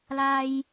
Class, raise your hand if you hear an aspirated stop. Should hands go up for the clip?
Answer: no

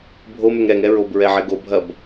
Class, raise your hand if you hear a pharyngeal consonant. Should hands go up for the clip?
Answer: yes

